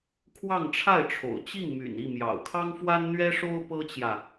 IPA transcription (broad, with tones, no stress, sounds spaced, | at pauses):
kʰ w ɑ˥˧ ŋ ʈ͡ʂʰ a˥˩ ɪ̯ ʈ͡ʂʰ o̰˨˩ ʊ̯ t͡ɕ i˥˩ ŋ m y̰˨˩ n i˥˩ m j ɑ̰˨˩ ʊ̯ kʰ ɑ˥ ŋ f w a˥ n n̪ ɥ ɛ˥ ʂ o˥ ʊ̯ p ɤ˥ t͡ɕ j ä˨